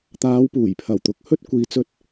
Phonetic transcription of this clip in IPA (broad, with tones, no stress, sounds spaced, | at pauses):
t̪ aː˨˧ w p uː˨˩ j pʰ ɐ˨˩ w t̪ ʊ˨ k̚ h ɵ˥ t̚ kʷ iː˨ t͡s ɵ˧ t̚